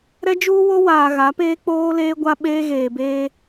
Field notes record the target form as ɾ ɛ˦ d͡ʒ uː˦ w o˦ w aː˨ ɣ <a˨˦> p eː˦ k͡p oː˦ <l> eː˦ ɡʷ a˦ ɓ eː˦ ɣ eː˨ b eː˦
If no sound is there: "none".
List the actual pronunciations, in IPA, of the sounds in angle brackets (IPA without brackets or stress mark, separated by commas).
a˨˦, l